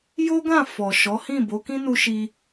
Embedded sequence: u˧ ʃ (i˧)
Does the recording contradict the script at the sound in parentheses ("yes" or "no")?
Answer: no